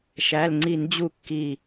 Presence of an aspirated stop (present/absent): absent